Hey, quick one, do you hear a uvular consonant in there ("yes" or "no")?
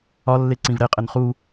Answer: yes